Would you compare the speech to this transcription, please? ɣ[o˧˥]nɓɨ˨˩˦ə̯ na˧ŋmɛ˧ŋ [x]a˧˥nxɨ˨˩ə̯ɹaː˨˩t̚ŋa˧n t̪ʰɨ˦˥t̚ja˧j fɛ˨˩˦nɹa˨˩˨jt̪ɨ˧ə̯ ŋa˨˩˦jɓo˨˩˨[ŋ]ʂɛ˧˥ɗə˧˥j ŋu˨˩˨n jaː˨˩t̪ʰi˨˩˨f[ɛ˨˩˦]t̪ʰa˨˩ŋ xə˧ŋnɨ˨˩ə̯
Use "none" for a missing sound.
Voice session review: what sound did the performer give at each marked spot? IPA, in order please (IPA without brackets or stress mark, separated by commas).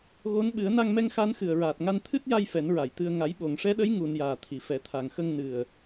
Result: o˧˥, x, ŋ, ɛ˨˩˦